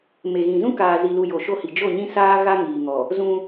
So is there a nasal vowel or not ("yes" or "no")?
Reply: yes